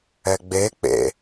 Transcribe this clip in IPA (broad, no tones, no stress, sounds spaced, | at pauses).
ɛ ɡ͡b e k͡p ḛ